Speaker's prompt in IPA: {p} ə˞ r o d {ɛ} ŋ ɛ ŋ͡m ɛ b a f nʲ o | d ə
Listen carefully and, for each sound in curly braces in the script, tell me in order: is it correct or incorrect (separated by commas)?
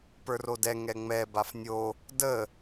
correct, correct